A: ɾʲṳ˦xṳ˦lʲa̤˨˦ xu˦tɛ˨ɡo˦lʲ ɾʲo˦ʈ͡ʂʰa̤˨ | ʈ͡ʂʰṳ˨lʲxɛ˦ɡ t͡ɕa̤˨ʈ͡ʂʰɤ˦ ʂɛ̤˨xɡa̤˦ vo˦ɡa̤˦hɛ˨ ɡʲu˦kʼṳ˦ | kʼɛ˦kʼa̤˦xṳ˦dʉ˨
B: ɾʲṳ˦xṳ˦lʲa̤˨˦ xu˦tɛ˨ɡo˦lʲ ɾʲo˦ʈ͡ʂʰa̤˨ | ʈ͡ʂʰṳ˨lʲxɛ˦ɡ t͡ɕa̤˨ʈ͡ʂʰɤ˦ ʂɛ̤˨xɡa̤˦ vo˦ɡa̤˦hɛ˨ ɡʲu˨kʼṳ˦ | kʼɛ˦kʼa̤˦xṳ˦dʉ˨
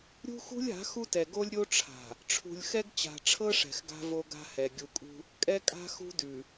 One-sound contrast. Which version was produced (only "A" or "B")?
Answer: B